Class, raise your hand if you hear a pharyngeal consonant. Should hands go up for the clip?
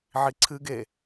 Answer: yes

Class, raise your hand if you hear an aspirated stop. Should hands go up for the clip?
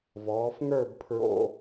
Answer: yes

